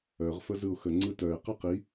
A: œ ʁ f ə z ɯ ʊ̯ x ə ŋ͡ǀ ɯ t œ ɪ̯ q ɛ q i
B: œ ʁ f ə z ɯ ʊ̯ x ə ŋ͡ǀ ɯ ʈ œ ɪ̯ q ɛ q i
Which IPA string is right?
A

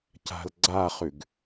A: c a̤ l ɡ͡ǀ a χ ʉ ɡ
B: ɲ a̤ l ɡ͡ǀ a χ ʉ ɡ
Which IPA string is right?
A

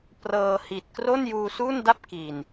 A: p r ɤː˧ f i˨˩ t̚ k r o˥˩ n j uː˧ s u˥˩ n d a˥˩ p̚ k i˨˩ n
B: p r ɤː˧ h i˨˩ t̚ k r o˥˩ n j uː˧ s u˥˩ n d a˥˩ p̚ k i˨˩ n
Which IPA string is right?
B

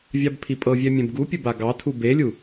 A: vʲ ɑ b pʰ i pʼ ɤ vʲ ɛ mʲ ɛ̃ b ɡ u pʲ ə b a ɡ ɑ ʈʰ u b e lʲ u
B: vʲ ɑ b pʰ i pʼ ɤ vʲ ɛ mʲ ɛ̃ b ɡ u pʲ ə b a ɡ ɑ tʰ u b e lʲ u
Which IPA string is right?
B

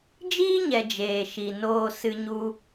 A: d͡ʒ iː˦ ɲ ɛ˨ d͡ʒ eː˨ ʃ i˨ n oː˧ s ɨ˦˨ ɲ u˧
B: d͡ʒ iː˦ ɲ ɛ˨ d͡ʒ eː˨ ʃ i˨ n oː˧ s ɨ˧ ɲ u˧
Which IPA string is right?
B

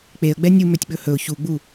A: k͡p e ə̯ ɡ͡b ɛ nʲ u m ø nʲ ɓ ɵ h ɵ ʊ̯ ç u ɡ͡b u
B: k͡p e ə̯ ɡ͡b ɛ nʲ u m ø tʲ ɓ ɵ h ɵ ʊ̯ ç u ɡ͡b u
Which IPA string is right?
B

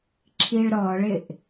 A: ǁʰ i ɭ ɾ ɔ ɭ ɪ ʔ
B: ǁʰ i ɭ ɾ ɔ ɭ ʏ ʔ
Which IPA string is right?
A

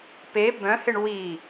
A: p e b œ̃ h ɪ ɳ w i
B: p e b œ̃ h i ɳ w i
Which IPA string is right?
A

